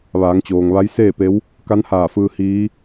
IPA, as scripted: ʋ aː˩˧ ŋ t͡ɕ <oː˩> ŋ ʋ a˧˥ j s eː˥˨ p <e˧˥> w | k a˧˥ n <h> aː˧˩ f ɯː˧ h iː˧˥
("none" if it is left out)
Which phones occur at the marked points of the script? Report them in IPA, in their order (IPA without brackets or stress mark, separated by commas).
oː˩, e˧˥, h